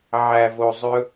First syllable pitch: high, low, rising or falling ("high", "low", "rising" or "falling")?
low